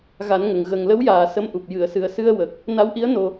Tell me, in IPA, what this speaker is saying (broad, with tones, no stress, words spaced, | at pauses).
ɣa˨˩˦n ŋə˨˩ŋ ɣə˨˩ŋlə˧˥wjaː˨˩ sə˧˥mʔu˨˩p̚ jɨ˨˩˨ə̯sɨ˨˩ə̯sɨ˧ə̯wə˨˩k̚ | na˧˥wʔi˧˥ə̯ no˧